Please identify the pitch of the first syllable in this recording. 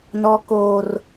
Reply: high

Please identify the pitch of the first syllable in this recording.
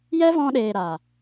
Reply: high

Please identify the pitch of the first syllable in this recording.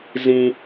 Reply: high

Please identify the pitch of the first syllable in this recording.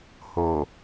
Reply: low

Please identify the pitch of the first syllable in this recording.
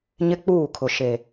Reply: high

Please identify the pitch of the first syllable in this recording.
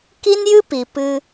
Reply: high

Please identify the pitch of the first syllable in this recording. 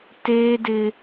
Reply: high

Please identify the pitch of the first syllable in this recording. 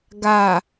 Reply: low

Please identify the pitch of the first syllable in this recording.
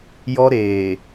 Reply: high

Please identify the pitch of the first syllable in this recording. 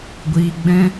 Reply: low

